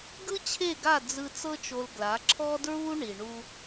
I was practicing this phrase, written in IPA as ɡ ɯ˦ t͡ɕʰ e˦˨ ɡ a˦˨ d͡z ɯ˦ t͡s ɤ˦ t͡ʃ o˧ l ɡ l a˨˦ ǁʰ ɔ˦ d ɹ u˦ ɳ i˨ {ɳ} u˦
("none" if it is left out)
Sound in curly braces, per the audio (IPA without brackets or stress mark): ɳ